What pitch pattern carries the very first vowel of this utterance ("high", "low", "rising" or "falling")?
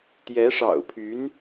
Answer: rising